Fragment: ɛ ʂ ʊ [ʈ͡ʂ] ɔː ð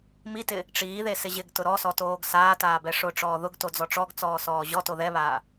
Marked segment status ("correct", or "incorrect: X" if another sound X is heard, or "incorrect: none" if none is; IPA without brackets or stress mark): correct